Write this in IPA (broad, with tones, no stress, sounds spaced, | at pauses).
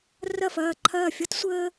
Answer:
r ɐ˥˩ f ɐː˥˩ ǃʰ ɐː˥˩ fʲ ʌ˥ t sʷ əː˥